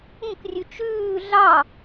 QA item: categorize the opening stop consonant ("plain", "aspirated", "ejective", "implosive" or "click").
plain